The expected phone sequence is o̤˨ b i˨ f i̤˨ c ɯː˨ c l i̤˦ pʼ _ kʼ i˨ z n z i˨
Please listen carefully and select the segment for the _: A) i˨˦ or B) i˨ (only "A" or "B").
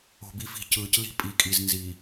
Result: A